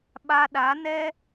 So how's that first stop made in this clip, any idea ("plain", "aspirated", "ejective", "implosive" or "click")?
implosive